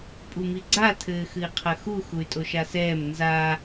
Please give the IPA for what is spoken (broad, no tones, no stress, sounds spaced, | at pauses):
pʼ u m i ɡ͡ǀ a tʰ ɘː x ɨ i̯ qʰ ɐ x u x u y̯ tʼ o ʃ a s ɛː m n z a